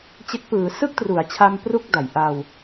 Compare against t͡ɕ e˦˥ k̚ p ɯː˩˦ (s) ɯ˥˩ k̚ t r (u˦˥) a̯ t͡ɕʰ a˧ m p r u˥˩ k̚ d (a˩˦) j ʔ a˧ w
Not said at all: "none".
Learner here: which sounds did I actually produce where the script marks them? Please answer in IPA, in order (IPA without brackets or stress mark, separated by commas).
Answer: s, u˩˦, a˩˦